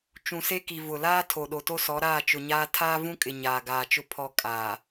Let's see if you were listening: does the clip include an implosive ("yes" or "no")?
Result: yes